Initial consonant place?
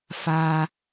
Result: labial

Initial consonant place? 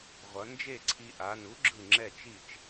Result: uvular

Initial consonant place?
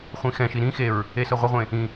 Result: uvular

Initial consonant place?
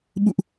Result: labial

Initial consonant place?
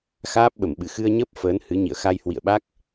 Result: velar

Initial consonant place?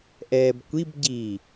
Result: glottal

